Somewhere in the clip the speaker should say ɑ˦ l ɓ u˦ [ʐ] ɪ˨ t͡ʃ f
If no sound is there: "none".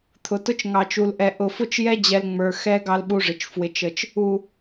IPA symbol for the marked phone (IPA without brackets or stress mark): ʐ